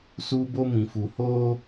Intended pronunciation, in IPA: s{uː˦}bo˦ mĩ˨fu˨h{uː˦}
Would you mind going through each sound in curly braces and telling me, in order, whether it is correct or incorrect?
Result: correct, incorrect

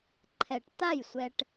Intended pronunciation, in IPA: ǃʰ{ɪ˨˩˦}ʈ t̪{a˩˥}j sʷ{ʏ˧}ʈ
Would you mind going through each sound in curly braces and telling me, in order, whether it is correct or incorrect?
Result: incorrect, incorrect, incorrect

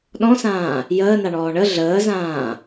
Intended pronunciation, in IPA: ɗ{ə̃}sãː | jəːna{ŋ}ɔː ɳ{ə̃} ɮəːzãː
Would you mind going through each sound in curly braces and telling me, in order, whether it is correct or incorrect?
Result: incorrect, incorrect, incorrect

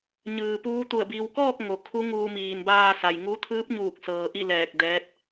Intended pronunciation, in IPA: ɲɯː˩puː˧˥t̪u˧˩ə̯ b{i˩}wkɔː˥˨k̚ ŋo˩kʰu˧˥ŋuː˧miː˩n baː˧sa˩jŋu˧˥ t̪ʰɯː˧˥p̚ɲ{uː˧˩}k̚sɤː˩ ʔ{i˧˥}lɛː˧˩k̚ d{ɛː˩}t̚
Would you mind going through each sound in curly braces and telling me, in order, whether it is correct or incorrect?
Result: correct, correct, incorrect, incorrect

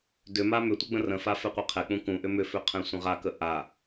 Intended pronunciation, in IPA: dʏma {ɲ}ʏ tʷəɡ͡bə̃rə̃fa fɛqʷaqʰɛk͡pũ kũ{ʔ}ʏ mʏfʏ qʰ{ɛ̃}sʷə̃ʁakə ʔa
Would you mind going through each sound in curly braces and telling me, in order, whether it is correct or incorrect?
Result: incorrect, correct, correct

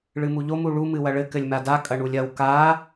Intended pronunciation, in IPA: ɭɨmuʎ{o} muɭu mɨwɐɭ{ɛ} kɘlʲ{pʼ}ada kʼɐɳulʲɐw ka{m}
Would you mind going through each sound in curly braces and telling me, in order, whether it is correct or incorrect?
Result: correct, incorrect, incorrect, incorrect

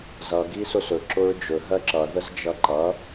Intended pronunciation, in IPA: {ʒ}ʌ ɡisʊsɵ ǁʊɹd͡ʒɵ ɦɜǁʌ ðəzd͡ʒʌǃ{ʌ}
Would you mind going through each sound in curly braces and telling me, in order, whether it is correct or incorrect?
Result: incorrect, correct

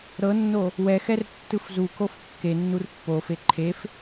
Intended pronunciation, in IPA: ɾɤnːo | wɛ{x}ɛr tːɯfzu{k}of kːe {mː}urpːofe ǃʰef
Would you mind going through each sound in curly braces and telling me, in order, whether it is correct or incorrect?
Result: correct, correct, incorrect

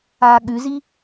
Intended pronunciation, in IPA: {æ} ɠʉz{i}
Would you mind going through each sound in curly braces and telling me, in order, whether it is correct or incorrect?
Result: incorrect, correct

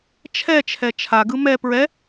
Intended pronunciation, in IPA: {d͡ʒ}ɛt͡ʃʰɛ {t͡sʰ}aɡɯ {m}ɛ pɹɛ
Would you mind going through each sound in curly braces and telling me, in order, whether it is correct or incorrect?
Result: incorrect, incorrect, correct

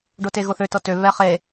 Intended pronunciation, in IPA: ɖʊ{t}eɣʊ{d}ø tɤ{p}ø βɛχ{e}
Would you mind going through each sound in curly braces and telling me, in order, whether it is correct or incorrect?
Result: correct, incorrect, incorrect, correct

